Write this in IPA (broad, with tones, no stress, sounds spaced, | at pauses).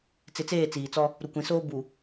t͡s ɪ˨˦ t͡s eː˦˨ t͡s iː˨ t͡s ɔ˦ | ɾ u˨ kʷ ĩ˨ s oː˦ b u˨